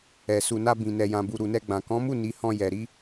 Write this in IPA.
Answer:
ɛ˨ s u˨ n a˧ b ĩ˨ n ɛ˨ j ã˨ b u˨ ɾ u˨ n ɛ˧ ɡ͡b ã˨ k ɔ̃˨˦ m u˦˨ n i˨˦ h ɔ̃˧ j ɛ˨ ɾ i˨˦

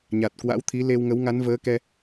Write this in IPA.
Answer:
ɲ a˨˩ t̚ k w a̰˧˥ w t̪ʰ i˨˦ l e˧ w ŋ ə˨˦ w ŋ a˨˦ n v əː˨˦ k ɛ˧

